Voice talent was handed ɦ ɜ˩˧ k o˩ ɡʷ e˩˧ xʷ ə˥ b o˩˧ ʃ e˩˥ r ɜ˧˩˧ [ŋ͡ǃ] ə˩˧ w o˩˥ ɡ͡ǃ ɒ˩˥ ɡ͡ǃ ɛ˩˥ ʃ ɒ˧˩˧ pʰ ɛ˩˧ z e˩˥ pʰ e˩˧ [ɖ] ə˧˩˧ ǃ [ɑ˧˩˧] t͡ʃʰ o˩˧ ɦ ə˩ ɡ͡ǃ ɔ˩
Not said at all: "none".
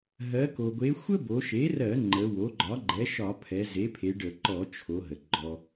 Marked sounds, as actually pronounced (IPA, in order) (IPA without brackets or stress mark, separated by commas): ŋ͡ǃ, ɖ, ɔ˧˩˧